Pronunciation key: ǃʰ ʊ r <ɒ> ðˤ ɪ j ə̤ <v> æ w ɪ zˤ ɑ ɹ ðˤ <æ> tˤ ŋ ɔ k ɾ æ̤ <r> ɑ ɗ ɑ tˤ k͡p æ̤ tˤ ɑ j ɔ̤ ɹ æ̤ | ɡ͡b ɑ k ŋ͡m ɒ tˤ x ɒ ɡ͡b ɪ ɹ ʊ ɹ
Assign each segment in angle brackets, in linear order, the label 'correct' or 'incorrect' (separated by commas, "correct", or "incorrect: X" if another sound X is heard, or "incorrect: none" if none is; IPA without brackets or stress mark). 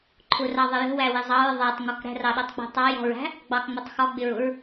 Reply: incorrect: ɑ, incorrect: w, correct, correct